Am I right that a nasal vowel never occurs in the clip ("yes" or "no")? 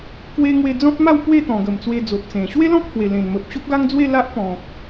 no